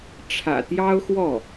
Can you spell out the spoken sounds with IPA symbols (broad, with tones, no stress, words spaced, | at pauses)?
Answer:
ʈ͡ʂʰä̰˨˩t̪jɑ˥ʊ̯xwɔ˥˩